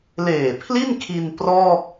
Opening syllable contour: low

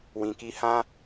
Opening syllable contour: low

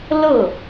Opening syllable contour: falling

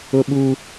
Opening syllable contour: high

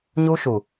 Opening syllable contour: high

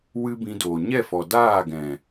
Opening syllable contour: high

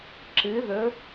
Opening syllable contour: rising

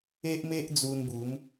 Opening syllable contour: high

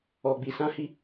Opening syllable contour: low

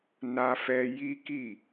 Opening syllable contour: high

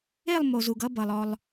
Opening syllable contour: falling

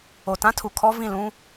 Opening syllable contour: low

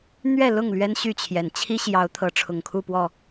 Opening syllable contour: falling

